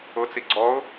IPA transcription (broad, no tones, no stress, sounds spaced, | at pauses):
ʊ t͡s i ɡ͡ǀ ɔ ʊ̯